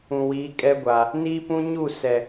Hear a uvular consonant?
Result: no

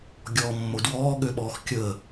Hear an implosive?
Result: yes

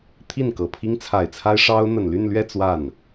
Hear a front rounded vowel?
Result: yes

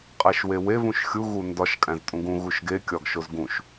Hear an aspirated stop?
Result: no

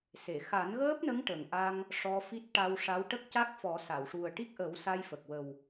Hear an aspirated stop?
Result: no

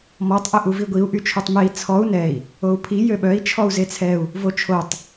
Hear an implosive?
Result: yes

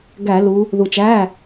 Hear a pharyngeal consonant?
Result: no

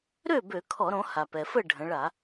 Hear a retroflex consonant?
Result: yes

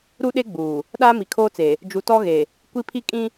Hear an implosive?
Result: yes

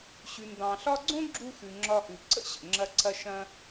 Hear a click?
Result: yes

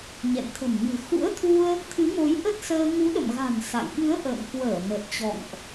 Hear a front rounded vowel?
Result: no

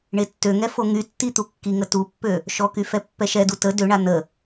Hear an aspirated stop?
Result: no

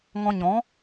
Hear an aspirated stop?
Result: no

